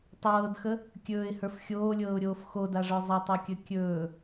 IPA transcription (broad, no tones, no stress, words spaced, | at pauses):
tˤɤːdxə | kʲɵːɪ̯hə˞f xʲoːlʲɤːʊ̯ɾʲoːf xodaʐə˞ zˤatˤɤkʲɵ kʲɵː